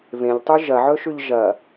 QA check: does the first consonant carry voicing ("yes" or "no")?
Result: yes